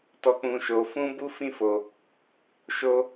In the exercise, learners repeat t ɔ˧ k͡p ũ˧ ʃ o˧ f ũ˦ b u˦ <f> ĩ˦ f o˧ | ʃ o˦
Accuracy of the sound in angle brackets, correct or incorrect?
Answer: correct